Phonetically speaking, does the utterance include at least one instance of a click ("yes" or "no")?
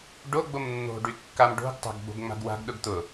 no